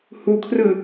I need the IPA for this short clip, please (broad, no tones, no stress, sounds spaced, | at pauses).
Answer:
h u kʰ r ɯ